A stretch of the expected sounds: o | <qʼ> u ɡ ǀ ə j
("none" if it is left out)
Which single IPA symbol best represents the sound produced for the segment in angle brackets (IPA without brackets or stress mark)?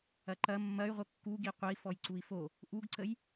ʔ